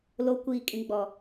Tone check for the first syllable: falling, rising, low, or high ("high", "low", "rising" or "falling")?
rising